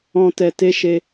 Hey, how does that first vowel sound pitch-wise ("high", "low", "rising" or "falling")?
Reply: low